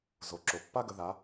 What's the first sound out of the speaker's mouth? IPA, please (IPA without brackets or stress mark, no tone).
z